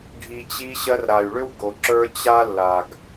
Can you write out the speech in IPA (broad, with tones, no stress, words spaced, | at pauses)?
ɖʱi˨t͡ɕi˧ ɕɜ˧rɾa˨y̯ɭʏ˦w ɡo˨ ǁə˞˦ t͡ɕa˦lːa˨ɡ